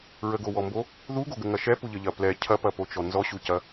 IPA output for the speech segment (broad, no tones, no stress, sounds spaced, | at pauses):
ɹ ə ɡ o w ɔ m b o | ð u ɡ o ɡ ə ŋ ɐ ʃ ɛ p u ʎ ə ʎ ɐ p l ɛ cʰ ɐ p ɐ p o t͡ʃ ɔ n z ɔ ɕ u c ɐ